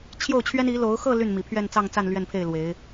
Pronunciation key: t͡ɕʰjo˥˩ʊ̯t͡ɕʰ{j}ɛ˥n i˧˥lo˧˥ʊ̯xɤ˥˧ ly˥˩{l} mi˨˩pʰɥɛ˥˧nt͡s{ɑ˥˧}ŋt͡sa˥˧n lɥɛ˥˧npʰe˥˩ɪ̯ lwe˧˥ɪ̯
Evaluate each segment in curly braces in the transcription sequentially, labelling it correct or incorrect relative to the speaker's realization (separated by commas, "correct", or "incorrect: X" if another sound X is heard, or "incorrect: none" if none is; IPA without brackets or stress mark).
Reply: incorrect: ɥ, incorrect: n, correct